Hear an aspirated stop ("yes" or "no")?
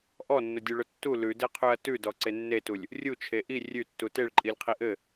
yes